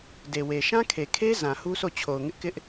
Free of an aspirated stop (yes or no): no